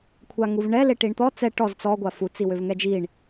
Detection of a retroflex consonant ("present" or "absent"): present